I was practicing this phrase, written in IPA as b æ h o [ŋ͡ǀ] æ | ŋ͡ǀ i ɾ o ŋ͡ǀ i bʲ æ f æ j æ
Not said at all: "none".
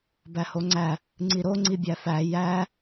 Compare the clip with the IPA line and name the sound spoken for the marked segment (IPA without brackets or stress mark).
ŋ͡ǀ